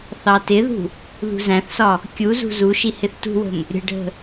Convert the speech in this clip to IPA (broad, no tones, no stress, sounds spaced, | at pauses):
θ ɑ t ɪ ð ṳ | ð ṳ z æ̃ θ s ɒ | kʲ u z ṳ z u ʃ i h ɪ θ t ṳ w ə̤ m | ɾʲ ə̤ ɖʱ ə̤